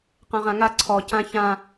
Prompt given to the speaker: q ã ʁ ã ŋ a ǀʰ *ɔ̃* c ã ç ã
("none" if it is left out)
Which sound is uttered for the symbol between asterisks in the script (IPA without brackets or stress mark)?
ɔ